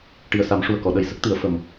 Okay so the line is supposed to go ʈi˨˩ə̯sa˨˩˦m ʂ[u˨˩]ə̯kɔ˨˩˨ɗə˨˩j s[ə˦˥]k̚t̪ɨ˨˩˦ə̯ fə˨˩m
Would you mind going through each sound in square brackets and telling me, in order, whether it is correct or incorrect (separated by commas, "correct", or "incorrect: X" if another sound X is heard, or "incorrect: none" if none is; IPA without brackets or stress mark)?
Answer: correct, correct